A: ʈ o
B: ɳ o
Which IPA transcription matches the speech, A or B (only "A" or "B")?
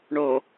B